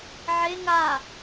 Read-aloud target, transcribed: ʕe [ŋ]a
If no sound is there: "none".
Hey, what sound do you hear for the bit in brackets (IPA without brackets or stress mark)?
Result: ŋ